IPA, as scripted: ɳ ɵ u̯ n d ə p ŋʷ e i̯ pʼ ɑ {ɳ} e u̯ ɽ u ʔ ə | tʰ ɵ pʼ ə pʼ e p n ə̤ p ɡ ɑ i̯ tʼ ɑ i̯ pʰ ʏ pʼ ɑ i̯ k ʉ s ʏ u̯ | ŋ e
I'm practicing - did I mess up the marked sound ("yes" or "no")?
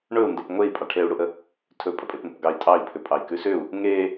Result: yes